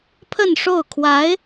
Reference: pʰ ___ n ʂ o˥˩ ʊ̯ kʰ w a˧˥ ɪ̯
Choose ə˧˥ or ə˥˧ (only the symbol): ə˥˧